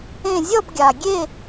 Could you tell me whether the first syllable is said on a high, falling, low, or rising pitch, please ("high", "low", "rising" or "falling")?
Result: falling